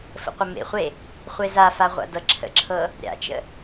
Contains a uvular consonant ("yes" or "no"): yes